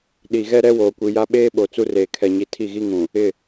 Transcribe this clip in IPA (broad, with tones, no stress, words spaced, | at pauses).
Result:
ɗi˨ɣɛ˦ɾɛ˦ woː˨kʷi˨ja˦ ɓeː˦ɓo˨ t͡su˦reː˨ kʰɛ˨ɲi˨ tʰi˦˨ɣi˦ŋũ˨ | ɪ˦˨